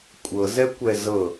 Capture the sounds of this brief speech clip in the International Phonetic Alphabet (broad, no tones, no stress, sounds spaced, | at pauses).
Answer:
kʷʼ ɤ z ɛ kʷ ɛ z ɤ